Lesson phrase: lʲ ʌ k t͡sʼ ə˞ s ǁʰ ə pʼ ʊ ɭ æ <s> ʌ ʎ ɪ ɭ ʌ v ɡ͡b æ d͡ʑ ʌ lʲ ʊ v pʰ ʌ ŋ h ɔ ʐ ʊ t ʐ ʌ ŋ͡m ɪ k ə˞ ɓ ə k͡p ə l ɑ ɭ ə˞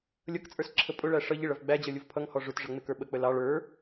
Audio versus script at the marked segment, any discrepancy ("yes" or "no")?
yes